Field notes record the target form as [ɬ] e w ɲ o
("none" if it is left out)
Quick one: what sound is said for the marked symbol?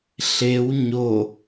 ɬ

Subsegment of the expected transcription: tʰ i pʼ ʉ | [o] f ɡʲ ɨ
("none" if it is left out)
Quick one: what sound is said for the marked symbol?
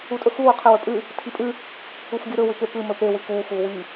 u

